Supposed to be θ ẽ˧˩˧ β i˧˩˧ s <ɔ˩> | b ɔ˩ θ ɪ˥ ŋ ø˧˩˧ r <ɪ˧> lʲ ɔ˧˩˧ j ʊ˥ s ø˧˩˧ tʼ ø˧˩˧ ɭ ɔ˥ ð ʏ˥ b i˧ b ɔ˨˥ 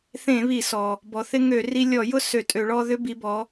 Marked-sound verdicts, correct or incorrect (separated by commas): correct, incorrect